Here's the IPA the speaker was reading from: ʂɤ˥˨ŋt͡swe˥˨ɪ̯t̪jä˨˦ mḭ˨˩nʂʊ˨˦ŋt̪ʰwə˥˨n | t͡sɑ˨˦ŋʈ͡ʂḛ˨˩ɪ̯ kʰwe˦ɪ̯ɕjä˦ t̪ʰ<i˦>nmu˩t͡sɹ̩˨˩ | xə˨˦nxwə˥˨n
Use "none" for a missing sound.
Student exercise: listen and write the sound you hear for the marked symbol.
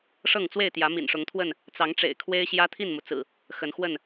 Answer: i˥˨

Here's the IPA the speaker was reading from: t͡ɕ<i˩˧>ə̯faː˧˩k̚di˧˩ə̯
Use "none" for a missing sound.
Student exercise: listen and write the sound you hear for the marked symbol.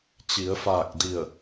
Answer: i˩˧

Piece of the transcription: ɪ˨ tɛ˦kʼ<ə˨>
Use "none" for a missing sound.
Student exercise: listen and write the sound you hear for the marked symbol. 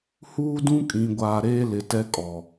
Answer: ɔ˨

